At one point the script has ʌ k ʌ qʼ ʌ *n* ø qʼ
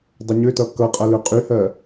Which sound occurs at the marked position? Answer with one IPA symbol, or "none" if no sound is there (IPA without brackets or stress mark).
l